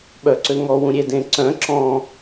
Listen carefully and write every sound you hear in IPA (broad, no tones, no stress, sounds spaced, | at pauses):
ɓ œ ǀ ø ŋ ɔ w ũ ɾʲ e d ẽ ǀ œ̃ ǁ ɔ̃